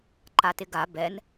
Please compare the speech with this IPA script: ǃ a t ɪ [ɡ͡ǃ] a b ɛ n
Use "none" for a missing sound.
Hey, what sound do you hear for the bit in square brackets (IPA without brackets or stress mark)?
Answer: ɡ